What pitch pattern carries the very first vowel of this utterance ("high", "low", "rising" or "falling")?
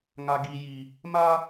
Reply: high